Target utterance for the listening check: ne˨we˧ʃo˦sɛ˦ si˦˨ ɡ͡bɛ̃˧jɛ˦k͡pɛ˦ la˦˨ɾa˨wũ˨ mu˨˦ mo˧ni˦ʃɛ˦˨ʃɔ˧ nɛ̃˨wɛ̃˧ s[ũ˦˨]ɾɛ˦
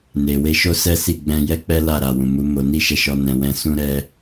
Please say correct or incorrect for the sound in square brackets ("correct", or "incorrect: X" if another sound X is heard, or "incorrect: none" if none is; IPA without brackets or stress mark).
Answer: incorrect: ũ˦